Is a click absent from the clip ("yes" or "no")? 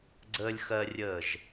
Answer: no